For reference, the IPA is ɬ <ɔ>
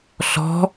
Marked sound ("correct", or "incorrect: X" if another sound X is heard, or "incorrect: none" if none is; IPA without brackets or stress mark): incorrect: ɔ̤